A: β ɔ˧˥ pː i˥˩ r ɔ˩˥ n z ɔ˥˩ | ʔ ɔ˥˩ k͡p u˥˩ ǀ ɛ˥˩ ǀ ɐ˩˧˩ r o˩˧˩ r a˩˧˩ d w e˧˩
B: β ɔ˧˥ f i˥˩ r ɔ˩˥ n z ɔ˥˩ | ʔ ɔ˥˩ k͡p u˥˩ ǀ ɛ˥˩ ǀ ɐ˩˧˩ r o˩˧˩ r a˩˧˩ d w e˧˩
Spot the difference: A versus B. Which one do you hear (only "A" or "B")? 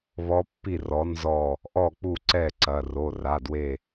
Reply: A